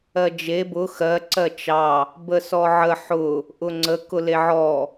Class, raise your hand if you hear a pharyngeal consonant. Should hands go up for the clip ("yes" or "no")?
yes